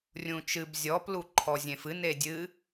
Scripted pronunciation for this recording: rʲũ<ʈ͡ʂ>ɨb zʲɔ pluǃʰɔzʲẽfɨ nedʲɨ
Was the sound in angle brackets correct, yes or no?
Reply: no